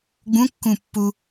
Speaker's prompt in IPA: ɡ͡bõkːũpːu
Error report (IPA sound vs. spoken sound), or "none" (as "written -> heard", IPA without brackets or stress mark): õ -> ũ